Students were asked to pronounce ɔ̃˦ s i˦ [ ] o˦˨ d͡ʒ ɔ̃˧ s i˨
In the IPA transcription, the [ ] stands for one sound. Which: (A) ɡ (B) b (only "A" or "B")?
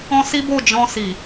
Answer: B